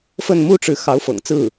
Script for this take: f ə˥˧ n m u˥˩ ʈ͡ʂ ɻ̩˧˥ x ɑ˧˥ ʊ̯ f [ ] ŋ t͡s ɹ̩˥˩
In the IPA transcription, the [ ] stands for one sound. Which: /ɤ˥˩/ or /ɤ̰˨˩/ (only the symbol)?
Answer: ɤ̰˨˩